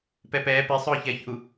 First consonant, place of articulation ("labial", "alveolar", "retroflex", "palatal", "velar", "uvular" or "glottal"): labial